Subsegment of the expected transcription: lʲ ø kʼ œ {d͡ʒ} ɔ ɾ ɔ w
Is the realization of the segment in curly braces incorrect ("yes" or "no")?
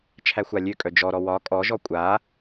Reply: no